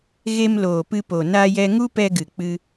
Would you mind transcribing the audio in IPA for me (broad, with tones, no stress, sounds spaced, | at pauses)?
ɣ e˧ m l oː˨ p ɨ˧ p o˨ n a˧ j ɛ˧ ŋ u˦ p ɛ˧ ɡ ɨ˨ k͡p ɨ˧